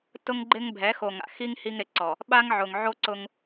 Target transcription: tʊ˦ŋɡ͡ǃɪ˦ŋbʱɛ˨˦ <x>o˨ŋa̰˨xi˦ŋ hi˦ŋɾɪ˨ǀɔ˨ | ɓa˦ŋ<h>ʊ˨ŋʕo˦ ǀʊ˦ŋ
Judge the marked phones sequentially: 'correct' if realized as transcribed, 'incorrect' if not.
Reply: correct, incorrect: ʕ

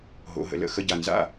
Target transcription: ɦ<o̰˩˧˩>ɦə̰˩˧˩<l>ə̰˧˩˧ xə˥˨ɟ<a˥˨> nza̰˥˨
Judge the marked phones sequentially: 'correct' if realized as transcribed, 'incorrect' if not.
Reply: correct, correct, incorrect: a˧˩

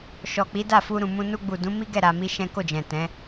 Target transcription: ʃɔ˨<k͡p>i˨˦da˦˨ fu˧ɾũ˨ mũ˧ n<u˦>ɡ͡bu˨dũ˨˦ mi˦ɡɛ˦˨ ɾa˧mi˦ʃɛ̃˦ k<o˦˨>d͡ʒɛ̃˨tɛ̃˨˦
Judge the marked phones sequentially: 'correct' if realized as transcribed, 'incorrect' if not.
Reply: correct, incorrect: u˧, correct

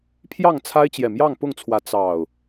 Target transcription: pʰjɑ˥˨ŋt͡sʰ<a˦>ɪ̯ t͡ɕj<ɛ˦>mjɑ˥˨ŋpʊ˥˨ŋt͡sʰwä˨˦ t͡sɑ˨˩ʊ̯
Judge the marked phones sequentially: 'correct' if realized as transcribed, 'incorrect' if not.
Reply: correct, incorrect: ɛ˨˩

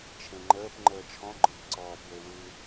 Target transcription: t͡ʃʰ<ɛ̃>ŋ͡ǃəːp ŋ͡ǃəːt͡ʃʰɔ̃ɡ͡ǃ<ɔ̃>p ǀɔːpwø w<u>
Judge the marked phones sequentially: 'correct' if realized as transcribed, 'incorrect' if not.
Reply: incorrect: ẽ, correct, incorrect: ɯ

